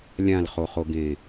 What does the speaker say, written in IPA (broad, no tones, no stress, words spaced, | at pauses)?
lʲãlχoχoɡẽː